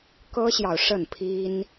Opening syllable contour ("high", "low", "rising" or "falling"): high